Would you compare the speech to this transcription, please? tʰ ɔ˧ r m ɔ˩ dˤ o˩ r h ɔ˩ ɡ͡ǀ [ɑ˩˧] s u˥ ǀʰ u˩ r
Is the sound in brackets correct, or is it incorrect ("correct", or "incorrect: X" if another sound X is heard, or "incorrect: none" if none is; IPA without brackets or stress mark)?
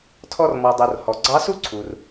incorrect: ɑ˧˥